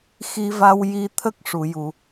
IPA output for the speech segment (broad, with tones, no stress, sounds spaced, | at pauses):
x i˧ v a˧ w j i˧ t̪ʰ ə˦˥ k̚ ʂ u˨˩˨ j u˨˩˨